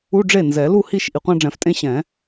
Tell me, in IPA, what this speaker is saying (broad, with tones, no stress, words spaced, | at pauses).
u˧˥˧ɖ͡ʐe˥˩ nzɛ˨˩˦ lu˥˩hi˥˩ʃ ʔi˨qʷã˥˧ɖ͡ʐɛ̃˨˩˦ftʼẽ˥˧ ɕɛ̃˨˩˦